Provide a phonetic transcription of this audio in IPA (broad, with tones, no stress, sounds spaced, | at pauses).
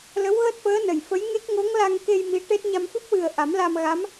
l ə˧˥ w ɣ əː˦˥ t̚ f əː˧˥ n ə˨˩ j f ə˧˥ j ŋ e˦˥ k̚ ŋ o˧˥ ŋ l a˧ ŋ k e˧ j m i˧˥ ʈ e˦˥ t̚ ɲ a˧ m f ɨ˦˥ p̚ w ɨ˨˩ ə̯ ʔ a˨˩˦ m l a˧ m ɣ a˧˥ m